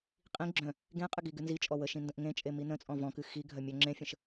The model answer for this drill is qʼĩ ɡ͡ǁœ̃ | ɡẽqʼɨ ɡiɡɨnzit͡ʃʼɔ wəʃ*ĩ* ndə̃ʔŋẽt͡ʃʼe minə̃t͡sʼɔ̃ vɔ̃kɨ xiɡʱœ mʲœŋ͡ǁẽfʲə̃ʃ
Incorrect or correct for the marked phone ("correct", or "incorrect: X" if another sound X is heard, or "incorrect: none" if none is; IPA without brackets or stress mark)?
correct